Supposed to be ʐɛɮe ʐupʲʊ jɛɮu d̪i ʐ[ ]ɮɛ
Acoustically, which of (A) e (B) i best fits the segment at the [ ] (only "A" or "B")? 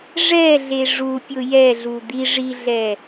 B